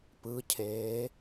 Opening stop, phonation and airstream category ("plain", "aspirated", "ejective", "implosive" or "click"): plain